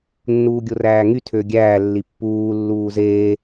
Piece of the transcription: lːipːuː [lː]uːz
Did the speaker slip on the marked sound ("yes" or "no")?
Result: no